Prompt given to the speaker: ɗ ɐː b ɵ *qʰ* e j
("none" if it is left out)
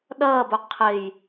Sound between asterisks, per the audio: qʰ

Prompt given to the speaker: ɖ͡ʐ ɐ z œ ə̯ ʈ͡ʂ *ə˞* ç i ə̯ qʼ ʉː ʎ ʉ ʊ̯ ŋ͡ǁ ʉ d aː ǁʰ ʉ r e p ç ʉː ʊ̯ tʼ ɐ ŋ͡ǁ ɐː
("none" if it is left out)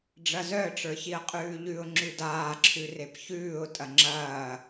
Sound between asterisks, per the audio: ə˞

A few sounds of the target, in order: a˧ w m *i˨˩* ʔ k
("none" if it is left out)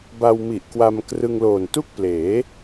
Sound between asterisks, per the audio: i˨˩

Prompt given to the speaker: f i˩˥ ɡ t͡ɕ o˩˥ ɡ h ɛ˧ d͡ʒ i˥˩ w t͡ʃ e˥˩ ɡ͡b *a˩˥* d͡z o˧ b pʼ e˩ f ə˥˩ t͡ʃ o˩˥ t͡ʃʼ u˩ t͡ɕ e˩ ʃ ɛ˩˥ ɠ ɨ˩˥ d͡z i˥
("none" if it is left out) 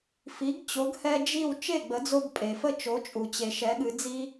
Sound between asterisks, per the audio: ə˩˥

